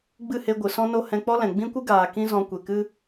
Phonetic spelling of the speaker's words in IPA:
ɡ͡b ɨ˦˨ h e˧ ɡʷ ɨ˨ s ɔ̃˦ n o˦ h ɛ̃˧ k͡p ɔ˦ l ɛ̃˨ ɡ͡b ĩ˦ kʷ ɨ˦ ɡ aː˨ k ĩ˦ z ɔ̃˧ kʷ e˨ k ɨ˦

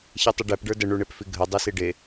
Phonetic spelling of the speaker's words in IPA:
ç e tˤ i ɖ æ p ɖ ə˞ d ə ɳ u ɳ e p f i ɡʱ ə dˤ i s i ɖ e

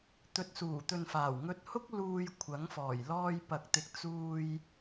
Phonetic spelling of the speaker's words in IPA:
t̪ ɵ˨˥ t̚ s uː˨˩ t̪ ɵ˨ n f aː˨˩ w ŋ ɵ˧ t̚ h ʊ˥ k̚ l uː˧ j kʷʰ ɐ˨˥ ŋ f ɔː˨˩ j l ɔː˧ j p ɐ˨ k̚ t̪ ɪ˨ k̚ t͡s uː˧ j

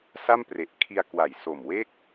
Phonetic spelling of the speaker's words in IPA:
s a˥˩ m p r e˨˩ ʔ kʰ i˧ a̯ k w a˨˩ j s o˨˩ m w e˥˩ k̚

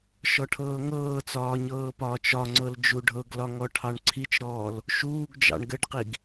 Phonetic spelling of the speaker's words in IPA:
ʃ ɔ ʈʰ ɤː ŋ ɤː t͡s ɒː ɲ ɤː p ɒː t͡ʃ ɒ ŋ͡ǀ ɤ l d͡ʒ u ɖʱ ɤ ɡ l ɒ ŋ ɔ ʈʰ ɑ ɳ ǀʰ i t͡ʃ ɾ ɔː l | ʃ uː ɡ d͡ʒ ɑ̰ ɳ ɡ ɘ ɖ q i ɡ

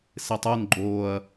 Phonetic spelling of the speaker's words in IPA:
s e tˤ u n ɡ͡ǃ oː ɐ̯

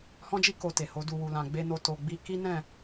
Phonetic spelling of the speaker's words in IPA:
h ɔ̃˦ d͡ʒ i˦ k o˧ t e˨ h o˨˦ d u˧ w u˨ l ã˨ ɡ͡b e˧ n o˧ t o˧ ɡ͡b i˦ k i˦ n ɛ̃˦˨

